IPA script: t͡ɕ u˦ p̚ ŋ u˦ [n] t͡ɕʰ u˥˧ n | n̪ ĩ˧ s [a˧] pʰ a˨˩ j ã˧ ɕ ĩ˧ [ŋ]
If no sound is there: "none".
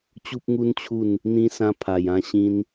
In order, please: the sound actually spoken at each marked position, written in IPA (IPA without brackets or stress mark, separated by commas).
n, ã˧, n